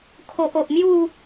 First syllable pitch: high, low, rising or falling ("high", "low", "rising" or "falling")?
low